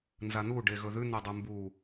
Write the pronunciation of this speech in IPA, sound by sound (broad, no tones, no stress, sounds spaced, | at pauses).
n z a n̪ u ɖ e ɣ ɵ ð ʉ n̪ o dˤ u m b u